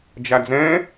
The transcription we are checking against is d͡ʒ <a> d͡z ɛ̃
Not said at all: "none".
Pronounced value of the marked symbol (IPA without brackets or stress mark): a